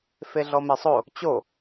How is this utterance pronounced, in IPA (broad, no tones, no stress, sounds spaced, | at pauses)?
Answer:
f e ɮ ɔ m e sˤ o | t͡ɕ o